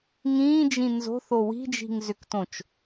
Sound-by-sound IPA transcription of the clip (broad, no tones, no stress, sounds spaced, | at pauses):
ŋ ĩː d͡ʒ ĩ n z o̤ θ o w i̤ d͡ʒ i̤ ŋ z ʏ k t õ t͡ʃ